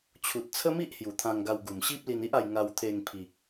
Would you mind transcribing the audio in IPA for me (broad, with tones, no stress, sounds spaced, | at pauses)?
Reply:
t͡ɕʰ u˨ t̚ t͡sʰ ə˦ m i˦ ʔ h j u˨˩ t̪ʰ ã˧ ŋ ɡ a˧ w ɡ u˨˩ m ɕ i˦ p̚ l i˧ n i˦ ʔ a˧ j ŋ a˧ w t̪ʰ e˧ ŋ pʰ i˨ k̚